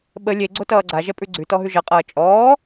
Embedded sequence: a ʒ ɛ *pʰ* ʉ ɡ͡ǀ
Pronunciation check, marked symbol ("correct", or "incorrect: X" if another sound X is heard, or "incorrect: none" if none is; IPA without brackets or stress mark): incorrect: pʼ